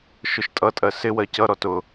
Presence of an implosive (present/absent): absent